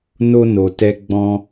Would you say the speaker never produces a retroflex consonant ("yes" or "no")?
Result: yes